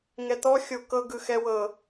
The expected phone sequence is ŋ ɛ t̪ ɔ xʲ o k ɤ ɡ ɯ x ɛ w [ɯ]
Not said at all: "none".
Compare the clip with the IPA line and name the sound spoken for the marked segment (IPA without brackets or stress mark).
ɤ